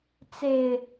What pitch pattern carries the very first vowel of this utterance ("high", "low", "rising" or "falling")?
low